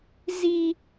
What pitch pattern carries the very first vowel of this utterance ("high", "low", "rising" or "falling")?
high